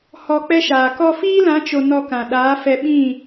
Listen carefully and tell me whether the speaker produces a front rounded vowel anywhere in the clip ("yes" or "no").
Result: no